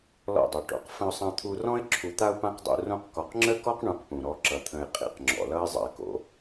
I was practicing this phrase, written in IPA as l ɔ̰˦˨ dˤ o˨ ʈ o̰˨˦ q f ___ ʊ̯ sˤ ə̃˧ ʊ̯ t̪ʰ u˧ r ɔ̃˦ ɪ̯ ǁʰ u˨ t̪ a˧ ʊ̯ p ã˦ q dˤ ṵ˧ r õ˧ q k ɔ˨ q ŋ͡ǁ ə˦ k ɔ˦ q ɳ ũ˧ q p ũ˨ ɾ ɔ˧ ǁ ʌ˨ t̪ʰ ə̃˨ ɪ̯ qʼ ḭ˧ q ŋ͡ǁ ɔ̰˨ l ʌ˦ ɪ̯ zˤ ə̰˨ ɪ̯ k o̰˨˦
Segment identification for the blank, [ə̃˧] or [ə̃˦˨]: ə̃˧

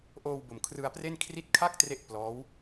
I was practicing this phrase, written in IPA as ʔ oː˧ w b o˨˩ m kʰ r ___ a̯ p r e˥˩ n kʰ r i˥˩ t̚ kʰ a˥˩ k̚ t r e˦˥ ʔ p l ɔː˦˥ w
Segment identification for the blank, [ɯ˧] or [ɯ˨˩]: ɯ˧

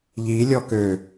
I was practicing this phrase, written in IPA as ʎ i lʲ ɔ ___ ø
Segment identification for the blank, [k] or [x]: k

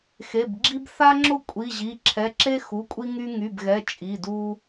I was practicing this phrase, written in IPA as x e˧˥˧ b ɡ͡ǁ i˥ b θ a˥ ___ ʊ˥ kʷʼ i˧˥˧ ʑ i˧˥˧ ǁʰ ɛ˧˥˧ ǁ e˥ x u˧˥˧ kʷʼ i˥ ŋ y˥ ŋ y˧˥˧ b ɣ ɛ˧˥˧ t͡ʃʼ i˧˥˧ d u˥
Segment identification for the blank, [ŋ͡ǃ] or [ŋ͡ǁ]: ŋ͡ǁ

